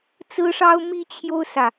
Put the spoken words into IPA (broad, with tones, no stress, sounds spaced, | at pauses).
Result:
t͡s ɹ̩˥ ʂ ɑ˥ ʊ̯ m i˥ t͡ɕʰ j o˥ ʊ̯ s ä˨